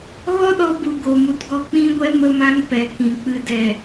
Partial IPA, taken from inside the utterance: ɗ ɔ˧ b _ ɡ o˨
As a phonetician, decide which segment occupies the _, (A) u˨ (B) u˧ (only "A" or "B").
A